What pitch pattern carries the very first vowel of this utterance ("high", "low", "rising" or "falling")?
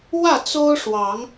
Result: falling